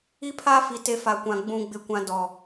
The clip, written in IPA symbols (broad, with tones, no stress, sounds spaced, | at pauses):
i˦ pʰ a˦ f i˨ t e˨˦ f a˨ kʷ ã˨ ɡ͡b ũ˨ ɡ͡b ɪ˨ kʷ ã˨ d ɔ˨